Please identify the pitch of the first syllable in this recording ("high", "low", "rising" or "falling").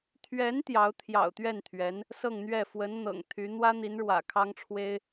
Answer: rising